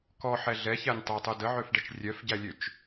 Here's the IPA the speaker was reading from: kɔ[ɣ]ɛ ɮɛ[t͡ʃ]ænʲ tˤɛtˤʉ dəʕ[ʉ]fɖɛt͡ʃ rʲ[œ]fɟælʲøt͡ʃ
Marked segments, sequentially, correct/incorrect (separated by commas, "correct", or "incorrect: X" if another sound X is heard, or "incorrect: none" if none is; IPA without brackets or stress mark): incorrect: ħ, incorrect: ç, incorrect: ø, correct